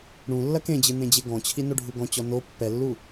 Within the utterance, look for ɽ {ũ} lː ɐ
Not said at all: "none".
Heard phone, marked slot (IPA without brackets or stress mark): ũ